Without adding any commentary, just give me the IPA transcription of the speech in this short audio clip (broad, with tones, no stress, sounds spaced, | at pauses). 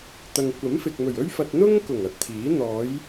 t̪ ɐ˨ ŋ kʷ ɐ˨˥ m f ɪ˨ k̚ m ɵ˨˩ ɥ ɵ˥ ɥ f ɐ˧ t̚ n̪ ʊ˥ ŋ k ʊ˨˩ ŋ ɐ˧ t̚ t̪ʰ iː˨˥ n̪ ɔː˨˧ j